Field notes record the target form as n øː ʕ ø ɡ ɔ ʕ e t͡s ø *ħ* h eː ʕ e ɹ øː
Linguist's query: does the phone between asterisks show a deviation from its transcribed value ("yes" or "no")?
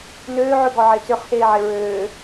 yes